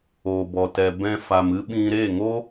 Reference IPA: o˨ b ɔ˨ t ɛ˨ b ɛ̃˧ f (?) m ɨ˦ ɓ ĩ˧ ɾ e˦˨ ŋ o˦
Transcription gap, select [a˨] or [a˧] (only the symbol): a˨